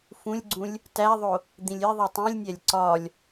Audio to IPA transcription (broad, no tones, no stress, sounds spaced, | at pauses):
f ũ lʲ ɡ͡ǀ ũ lʲ | t æ ðˤ o | d̪ ĩ lʲ e ðˤ i tˤ ĩ lʲ nʲ æ lʲ ǀ ɒ lʲ